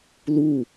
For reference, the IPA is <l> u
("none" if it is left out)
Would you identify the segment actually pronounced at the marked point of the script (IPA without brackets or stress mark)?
l